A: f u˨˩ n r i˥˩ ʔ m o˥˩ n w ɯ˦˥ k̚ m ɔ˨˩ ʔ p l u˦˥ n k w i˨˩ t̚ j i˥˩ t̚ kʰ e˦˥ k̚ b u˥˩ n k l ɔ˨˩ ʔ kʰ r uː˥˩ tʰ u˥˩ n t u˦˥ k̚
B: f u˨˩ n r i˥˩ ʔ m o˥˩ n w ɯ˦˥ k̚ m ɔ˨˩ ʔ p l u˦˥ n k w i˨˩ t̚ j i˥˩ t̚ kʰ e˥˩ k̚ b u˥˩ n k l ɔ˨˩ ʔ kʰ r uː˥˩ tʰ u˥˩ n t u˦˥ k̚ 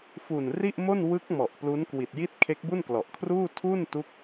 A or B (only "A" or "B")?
A